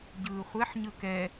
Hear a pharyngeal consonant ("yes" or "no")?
yes